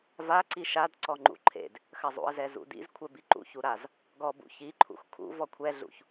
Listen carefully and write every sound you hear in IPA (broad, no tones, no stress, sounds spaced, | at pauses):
v a ǀ i ʃ a d ǀ ɔ ŋ͡ǃ ṵ ǃʰ ḛ d | x ɐ zˤ ṵ ə̯ z ɛ z ṵ d ḭ z kʷʰ ɛ b i ǃ ṵ ç u ɾ a z | ɡ ɔ b ṵ ç i ǃʰ ṵ x kʰ ṵ v ɔ kʷʰ ɛ ɮ ṵ ç